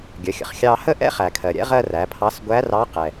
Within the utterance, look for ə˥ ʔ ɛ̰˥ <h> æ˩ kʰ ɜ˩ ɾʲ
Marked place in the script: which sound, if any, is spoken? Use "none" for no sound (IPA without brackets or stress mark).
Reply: χ